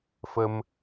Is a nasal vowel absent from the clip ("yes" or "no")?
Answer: yes